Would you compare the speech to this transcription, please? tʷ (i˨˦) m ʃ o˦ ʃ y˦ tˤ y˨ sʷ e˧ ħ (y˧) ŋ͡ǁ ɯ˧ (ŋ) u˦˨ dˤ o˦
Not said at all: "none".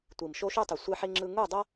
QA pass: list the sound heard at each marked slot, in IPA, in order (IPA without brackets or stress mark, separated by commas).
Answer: i˨, i˧, ŋ